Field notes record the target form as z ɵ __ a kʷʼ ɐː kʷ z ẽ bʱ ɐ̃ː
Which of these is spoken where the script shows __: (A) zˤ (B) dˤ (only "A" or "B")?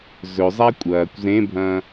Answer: A